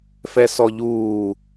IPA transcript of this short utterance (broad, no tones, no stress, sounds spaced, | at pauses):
f ɛ s ɔ ʎ uː